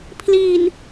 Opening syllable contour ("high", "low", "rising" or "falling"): low